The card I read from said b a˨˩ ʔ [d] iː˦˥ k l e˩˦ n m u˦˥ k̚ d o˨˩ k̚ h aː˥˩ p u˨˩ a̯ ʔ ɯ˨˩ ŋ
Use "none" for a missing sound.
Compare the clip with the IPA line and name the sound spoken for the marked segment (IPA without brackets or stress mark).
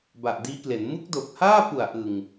d